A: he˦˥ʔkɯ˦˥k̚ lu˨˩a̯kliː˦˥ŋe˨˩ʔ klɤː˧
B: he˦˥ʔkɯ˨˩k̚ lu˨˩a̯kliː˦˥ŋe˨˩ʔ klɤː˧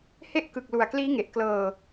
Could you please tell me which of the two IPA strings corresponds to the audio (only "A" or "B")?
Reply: B